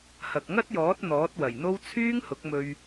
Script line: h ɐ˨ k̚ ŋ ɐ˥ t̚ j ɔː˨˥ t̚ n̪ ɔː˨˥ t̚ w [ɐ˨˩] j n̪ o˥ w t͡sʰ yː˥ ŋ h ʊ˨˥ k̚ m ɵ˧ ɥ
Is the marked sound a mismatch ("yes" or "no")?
no